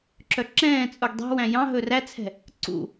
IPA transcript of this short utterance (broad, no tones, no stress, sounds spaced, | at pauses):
ǁ œ ǁ ɛ̃ː t͡sʼ u ɡ dˤ ɛ̤ w æ̃ j ɑ̃ ɦ ɵ r æ t͡sʰ ɛ̤ | ǀ ṵ